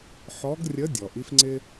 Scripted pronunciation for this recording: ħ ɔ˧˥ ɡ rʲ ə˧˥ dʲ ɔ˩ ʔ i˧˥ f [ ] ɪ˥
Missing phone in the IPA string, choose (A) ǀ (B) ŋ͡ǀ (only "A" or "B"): B